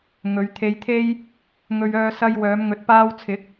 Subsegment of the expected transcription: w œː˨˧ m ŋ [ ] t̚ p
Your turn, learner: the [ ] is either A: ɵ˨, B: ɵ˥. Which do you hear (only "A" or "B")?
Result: A